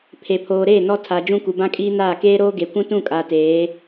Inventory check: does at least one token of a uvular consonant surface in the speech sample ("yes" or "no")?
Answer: no